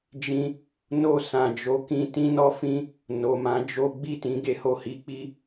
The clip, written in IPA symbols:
d͡ʒĩ˧ | no˧sã˨d͡ʒo˨˦kĩ˧ tĩ˦nɔ˦fĩ˦ | no˨mã˨˦d͡ʒo˦ ɡ͡bi˦˨tĩ˨˦ ɡe˧ho˧hi˦ k͡pi˦

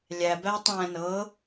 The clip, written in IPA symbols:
lʲæ bætˤæ̃ nɤ

